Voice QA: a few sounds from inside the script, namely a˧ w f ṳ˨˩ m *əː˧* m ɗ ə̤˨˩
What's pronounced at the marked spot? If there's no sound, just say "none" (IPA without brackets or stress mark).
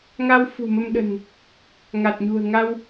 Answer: ə˧